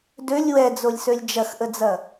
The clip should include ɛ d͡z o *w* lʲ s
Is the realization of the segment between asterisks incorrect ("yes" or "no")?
yes